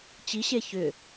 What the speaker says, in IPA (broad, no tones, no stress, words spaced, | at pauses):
t͡ɕiɕe çʏ